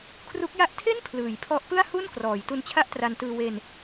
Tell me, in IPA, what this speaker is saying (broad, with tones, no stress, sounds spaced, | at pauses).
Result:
kʰ r u˦˥ k̚ j a˥˩ ʔ tʰ e˥˩ n pʰ l ɯː˩˦ j pʰ ɔ˦˥ ʔ p ɯ˥˩ a̯ h u˥˩ n k r ɔː˩˦ j t u˧ n t͡ɕʰ a˥˩ ʔ t r a˧ n t ɯː˧ w e˧ n